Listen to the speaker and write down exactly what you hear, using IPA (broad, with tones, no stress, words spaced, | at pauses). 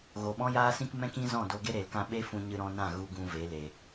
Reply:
ɣo˨ɓɔ̃˦jaː˦sĩ˦k mɛ̃˦kĩ˦ zɔ̃˦˨do˧ɡe˦ ɾe˨lkã˦ ɓe˦fũ˧ɲɨ˧ɾɔ̃˧ nã˦˨ ɣu˧ɡũ˧ ve˨˦le˨